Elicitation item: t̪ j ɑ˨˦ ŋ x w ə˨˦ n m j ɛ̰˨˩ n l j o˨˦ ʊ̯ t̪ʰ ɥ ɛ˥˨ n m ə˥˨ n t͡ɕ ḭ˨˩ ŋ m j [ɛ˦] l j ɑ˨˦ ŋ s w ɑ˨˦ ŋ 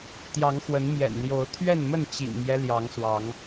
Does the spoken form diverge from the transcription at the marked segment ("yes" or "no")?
no